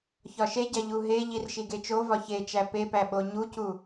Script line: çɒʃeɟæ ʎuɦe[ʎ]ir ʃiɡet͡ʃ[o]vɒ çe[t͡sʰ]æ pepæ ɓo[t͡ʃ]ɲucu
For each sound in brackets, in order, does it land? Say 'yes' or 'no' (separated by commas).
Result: yes, yes, no, no